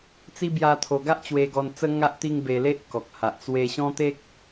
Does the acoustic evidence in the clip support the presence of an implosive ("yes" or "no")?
no